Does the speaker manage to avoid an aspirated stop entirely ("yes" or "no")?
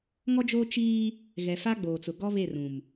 yes